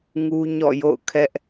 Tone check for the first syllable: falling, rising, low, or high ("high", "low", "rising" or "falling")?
high